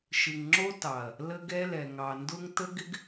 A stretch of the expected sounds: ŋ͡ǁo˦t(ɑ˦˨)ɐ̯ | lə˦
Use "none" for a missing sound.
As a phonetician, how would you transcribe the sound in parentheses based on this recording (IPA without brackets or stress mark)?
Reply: ɑ˨